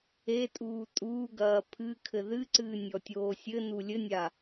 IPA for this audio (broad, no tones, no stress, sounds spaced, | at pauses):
e tʼ uː tʼ uː ɡ ɐː pʰ ɨ kʰ ɘ ð ɨ ǀ ɨː nʲ ɔ tʲ oː sʲ ɘ n u lʲ ɘ nʲ a